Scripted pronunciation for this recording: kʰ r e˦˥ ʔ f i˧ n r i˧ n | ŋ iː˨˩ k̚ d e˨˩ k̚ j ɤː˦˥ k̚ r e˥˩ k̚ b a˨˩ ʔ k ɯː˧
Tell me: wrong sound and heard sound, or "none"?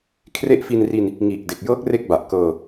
ɯː˧ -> ɤː˧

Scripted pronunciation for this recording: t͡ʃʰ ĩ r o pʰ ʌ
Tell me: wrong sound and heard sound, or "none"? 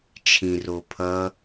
none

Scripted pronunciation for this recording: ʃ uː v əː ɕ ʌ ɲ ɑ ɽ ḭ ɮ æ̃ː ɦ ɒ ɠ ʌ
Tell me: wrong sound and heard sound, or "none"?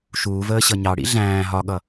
none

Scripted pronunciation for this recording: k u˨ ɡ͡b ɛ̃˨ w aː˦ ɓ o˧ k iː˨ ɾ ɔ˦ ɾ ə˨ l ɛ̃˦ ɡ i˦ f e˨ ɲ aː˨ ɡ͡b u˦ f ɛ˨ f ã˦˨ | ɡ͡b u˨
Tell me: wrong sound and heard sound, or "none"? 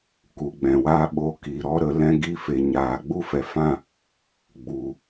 ə˨ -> ə˨˦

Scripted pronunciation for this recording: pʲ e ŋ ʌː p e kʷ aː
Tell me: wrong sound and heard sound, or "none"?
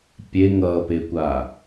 none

